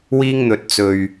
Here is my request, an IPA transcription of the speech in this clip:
w iː˧ ŋ n̪ ɵ˨ t̚ t͡s ɵ˨ ɥ

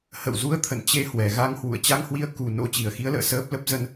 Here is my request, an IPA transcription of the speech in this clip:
h ə̰˧˨ w z u˨˦ ə̯ t̪ʰ ə̰˧˨ n t͡ɕ e˧ h w ɛ˨˩ ɣ a˧ ŋ h w ṵ˧˨ ə̯ t͡ɕ a˧ ŋ h w i˧ ə̯ k u˨˩ n o̰˧˥ t͡ɕ i˨˩ ə̯ x i˨˦ ə̯ l ə̰ː˧˨ s əː˦˥ p̚ l ə˦˥ p̚ z ə˧ n

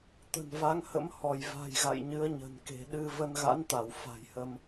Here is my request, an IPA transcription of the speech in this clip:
t̪ ə̤˨˩ n v a˨˦ ŋ h ə̰˧˥ m h ɔ˧˩ j v a̤˨˩ j ɣ a̰˧˨ j ɲ ɨ˨˦ ə̯ ɲ ə̤˨˩ n k e̤˨˩ ɗ ɨ˧ v ə˧ n ɣ a̰˧˥ n t̪ a˧˩ w f a̤˨˩ j h ə˧ m

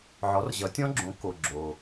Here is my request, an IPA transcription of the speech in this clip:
ʕ ɔ˩˥ r ʑ ʌ˩˥ tʲ ɔ̃˦˥ ɡ͡ǁ õ˩˥ k o˩ ɡ͡ǁ o˩

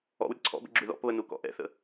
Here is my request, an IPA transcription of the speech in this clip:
ɔ̰ w ɾʲ ə ǀʰ ɔ̰ b ə̰ ɡ͡ǁ ʉ ð ɔ̰ p β ə n u k ɔ̰ ʔ ɛ̰ θ ə̰

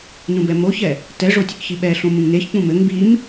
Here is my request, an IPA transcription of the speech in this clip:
n ũ b ɛ m o ç ɛ | t ɛ ʐ o tʲ ɘ k ç i ɓ ɛ ɬ õ m ũ ŋ n e ç k͡p ũ m ɘ ŋ b i m

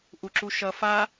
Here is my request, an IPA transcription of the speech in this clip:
ʔ u ǁ u ʃ ʌ f a

